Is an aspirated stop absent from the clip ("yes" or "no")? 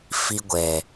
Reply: yes